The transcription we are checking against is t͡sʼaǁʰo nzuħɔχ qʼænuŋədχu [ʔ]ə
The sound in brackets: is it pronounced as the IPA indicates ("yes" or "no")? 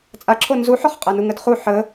no